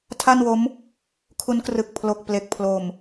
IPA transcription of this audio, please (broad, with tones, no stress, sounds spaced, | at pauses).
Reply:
tʰ a˥˩ n w o˦˥ m | kʰ u˦˥ n k r ɯ˨˩ k̚ pʰ l o˨˩ k̚ p l e˨˩ k̚ pʰ l o˨˩ m